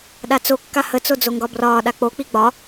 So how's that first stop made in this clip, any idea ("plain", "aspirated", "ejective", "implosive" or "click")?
implosive